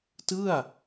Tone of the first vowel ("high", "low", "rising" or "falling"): falling